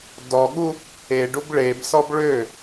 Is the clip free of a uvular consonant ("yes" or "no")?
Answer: yes